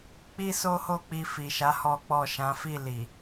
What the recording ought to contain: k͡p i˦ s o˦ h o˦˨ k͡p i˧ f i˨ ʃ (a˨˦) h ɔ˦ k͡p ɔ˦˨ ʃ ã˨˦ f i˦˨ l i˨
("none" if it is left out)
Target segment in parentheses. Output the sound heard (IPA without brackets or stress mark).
a˨˦